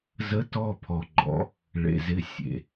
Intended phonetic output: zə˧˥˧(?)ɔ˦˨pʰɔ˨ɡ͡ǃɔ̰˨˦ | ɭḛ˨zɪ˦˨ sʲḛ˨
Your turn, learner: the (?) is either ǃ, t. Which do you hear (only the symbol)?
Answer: t